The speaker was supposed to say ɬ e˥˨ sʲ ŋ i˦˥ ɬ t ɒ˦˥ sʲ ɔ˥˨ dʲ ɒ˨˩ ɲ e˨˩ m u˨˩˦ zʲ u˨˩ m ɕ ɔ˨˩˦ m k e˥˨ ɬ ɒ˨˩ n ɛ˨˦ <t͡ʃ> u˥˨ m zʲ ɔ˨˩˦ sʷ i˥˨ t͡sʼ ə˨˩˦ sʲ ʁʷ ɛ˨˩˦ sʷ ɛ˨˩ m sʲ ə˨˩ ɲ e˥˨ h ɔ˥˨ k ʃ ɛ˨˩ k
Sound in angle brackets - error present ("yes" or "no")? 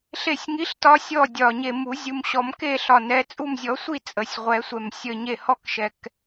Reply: yes